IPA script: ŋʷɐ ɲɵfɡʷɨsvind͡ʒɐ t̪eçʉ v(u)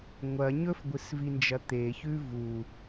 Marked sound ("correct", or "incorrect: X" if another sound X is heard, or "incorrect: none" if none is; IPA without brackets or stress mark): correct